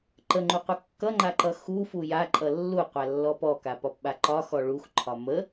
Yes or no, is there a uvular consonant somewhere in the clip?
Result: yes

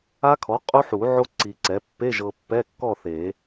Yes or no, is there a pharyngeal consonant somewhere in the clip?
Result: yes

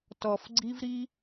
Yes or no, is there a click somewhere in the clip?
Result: yes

